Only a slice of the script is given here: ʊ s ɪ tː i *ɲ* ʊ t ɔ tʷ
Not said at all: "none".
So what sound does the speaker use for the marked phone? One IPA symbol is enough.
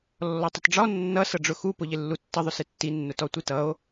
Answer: nː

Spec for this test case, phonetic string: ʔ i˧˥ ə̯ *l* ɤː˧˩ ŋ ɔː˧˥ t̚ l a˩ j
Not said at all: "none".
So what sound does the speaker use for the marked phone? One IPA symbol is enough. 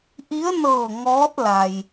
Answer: n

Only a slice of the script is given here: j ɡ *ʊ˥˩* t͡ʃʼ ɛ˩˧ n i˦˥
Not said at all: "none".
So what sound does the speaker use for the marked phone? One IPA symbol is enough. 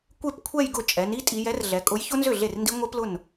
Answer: ʊ˥˩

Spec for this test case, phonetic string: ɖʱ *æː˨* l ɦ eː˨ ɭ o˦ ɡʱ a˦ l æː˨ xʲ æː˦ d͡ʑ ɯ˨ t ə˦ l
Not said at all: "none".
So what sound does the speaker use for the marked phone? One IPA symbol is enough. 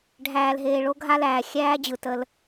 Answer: æː˨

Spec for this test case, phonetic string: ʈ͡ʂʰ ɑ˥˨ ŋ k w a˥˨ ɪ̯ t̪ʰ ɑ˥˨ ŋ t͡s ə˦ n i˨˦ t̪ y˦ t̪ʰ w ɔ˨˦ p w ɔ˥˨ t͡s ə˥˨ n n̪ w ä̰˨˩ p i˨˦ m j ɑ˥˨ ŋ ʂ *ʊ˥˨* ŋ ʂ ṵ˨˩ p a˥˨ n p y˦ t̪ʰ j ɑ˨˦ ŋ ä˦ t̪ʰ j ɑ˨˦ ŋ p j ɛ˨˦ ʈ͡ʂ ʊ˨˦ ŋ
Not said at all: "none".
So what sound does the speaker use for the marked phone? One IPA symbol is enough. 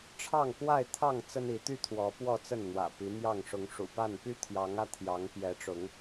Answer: ʊ˨˦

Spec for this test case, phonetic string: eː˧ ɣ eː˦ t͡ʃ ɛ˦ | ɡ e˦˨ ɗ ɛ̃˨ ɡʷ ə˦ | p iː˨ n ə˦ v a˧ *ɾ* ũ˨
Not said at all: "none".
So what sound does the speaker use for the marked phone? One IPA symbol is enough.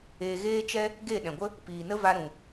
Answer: ɾ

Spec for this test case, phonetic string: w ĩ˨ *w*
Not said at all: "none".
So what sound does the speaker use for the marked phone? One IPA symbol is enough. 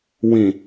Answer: none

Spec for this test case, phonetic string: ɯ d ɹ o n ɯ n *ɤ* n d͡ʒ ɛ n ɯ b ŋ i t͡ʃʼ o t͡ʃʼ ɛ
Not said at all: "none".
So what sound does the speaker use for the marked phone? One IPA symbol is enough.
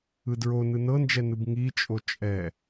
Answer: ɤ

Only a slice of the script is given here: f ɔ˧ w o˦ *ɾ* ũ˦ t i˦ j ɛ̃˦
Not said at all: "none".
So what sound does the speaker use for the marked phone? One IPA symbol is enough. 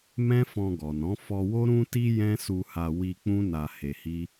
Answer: ɾ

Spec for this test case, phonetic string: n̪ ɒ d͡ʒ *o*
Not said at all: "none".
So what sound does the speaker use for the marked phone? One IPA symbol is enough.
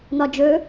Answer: ɵ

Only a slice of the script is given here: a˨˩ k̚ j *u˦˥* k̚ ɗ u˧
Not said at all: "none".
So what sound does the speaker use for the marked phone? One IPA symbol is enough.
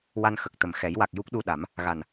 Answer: u˦˥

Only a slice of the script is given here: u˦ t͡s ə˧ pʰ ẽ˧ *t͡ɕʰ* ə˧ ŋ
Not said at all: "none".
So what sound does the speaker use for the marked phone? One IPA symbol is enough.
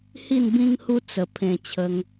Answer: t͡ɕʰ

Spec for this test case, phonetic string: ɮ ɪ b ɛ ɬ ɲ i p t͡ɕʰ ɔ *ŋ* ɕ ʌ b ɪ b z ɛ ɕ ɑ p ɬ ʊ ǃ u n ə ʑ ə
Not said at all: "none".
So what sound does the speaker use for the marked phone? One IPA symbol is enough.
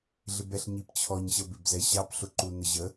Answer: ɲ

